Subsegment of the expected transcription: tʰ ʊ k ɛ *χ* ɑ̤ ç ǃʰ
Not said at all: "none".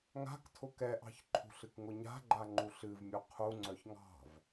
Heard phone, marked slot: ʔ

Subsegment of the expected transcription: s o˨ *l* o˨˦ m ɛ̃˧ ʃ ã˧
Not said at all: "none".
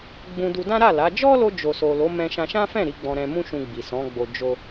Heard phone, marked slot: l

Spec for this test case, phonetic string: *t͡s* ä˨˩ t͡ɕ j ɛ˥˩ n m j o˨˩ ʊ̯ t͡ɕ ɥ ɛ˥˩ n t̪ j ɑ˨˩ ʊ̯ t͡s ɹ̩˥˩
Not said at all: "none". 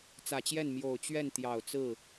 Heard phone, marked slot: t͡s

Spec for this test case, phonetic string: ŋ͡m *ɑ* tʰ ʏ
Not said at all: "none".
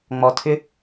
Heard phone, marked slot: ɔ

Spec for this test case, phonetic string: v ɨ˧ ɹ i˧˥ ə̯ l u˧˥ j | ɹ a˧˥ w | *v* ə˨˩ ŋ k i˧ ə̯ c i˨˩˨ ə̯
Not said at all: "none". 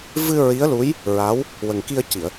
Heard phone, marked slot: w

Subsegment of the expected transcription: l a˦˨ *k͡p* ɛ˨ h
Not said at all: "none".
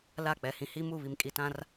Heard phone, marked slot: k͡p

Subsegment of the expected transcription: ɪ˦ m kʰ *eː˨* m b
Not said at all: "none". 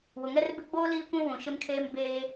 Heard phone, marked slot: eː˦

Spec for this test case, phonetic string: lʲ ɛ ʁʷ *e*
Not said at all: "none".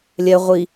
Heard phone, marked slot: i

